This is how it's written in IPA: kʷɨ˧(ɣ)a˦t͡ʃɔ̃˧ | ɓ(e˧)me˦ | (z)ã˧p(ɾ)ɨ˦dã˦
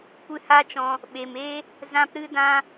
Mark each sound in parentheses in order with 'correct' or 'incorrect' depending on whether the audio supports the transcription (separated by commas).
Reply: incorrect, incorrect, correct, correct